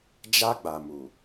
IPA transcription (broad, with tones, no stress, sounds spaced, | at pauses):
d͡ʒ a˦ ɡ͡b a˨ m u˨